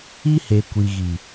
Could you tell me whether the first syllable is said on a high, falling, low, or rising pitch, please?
high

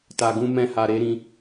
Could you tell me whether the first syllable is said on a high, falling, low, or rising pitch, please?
low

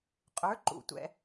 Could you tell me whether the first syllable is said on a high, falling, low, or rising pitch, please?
rising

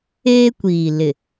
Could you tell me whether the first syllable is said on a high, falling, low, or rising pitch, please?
high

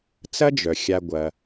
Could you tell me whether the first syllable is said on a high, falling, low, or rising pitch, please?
high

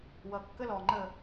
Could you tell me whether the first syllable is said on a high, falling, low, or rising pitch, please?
low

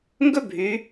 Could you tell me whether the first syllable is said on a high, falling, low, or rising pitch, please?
high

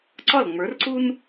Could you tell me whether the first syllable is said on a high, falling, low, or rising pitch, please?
falling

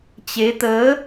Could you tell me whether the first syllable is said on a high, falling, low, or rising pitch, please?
rising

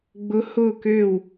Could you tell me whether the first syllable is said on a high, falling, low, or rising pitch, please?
rising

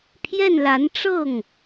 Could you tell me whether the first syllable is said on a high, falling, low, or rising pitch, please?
falling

